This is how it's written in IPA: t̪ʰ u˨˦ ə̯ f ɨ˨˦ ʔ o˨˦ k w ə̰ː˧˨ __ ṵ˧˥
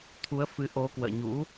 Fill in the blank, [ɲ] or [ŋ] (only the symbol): ɲ